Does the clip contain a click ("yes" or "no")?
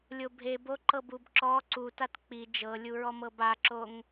yes